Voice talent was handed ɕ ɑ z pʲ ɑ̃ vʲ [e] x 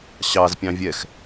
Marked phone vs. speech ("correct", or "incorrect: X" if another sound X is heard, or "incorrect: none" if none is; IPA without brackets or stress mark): incorrect: ɛ